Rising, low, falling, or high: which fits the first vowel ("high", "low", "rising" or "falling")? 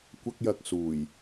high